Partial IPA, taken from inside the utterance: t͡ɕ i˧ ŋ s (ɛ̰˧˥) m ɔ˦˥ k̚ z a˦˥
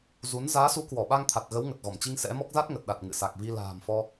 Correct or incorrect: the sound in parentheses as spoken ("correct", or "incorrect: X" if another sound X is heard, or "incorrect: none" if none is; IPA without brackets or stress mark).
correct